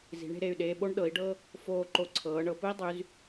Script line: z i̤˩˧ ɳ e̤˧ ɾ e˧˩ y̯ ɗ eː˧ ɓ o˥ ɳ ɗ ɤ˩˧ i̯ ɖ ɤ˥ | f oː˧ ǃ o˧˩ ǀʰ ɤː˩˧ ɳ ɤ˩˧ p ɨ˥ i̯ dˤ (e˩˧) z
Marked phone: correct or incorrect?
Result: incorrect: y˩˧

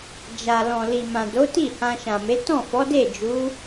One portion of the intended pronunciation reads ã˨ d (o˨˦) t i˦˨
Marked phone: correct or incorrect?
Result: correct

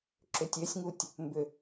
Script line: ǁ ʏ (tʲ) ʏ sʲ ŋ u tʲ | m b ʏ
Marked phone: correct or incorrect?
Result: correct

